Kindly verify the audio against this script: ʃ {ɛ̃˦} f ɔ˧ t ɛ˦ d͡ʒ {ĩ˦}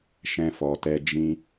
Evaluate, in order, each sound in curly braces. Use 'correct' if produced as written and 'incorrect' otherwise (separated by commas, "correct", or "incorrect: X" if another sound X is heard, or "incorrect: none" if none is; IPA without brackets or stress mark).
correct, correct